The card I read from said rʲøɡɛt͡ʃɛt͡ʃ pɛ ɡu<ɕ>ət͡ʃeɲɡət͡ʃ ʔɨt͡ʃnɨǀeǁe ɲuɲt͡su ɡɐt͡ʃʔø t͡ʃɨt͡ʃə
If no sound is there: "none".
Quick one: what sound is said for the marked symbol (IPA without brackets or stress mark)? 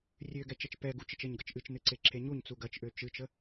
t͡ʃ